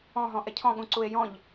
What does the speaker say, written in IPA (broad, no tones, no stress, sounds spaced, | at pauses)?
ɔ̃ ɦ ɔ̃ ʔ ɛ cʰ ɔ̃ ɠ ũ ǀ u e̯ j ɔ̃ ʎ